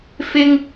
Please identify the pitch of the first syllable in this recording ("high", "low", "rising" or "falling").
high